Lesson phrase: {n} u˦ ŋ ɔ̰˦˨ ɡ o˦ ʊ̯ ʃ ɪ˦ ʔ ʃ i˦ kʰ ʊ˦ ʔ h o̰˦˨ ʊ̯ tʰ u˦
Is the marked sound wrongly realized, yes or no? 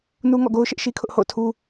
no